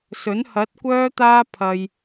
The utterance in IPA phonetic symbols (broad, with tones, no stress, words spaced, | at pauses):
sɵ˨˥n hɐ˨˥t̚ kʷœː˥t̪aː˥pʰɐ˧j